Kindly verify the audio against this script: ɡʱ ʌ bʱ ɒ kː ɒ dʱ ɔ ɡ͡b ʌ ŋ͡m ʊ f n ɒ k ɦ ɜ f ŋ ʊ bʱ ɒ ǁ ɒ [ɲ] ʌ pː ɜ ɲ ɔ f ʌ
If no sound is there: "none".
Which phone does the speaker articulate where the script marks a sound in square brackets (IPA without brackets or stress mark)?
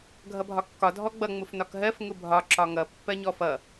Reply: ŋ